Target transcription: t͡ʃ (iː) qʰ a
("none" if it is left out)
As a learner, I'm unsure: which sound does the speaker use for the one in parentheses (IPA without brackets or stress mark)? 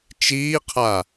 iː